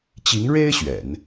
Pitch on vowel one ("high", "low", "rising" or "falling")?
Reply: rising